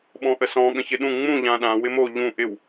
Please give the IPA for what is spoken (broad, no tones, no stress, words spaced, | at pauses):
ɓɔ̃ʔəsɔ̃ ɠə̃çɪɗũ ŋ͡mũ ʎãːɗã wɪmo ʎũ ʔɪw